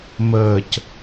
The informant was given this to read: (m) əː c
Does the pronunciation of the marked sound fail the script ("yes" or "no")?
no